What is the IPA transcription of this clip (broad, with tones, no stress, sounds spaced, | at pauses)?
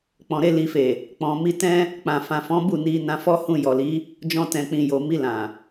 k͡p ɔ̃˨ ɾ e˧ l i˨ f e˨ | k͡p ɔ̃˨ m i˧ t ɛ̃˦ | k͡p ã˨ f ã˨ f ɔ̃˨˦ b u˦˨ n i˧ n ã˧ f ɔ˦ h ũ˧ j ɔ˨ l i˨˦ | d͡ʒ ɔ̃˧ t ɛ̃˨ k͡p ĩ˨ j o˨ m i˧ l ã˨